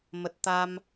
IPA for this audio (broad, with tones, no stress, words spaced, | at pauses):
mə˨˩t̚t̪a˧m